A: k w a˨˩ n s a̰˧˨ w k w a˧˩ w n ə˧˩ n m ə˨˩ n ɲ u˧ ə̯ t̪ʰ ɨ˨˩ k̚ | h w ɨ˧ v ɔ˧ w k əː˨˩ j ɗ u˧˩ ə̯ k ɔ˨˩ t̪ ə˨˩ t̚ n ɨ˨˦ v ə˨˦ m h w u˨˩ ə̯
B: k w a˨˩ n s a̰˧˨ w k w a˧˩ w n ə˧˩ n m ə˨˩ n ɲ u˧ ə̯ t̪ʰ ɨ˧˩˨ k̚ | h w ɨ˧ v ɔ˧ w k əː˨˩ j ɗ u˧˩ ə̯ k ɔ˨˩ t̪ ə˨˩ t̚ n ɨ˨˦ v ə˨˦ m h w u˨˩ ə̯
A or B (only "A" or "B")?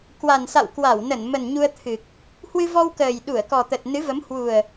A